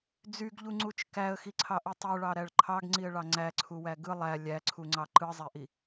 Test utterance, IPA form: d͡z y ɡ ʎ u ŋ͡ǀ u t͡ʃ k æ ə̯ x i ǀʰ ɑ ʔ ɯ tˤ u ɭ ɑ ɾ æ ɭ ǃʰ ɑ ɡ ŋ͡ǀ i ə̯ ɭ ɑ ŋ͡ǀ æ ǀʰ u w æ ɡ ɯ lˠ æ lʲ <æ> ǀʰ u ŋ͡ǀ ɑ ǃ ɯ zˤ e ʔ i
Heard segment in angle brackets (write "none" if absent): æ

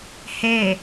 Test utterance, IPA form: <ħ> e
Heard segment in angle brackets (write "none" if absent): h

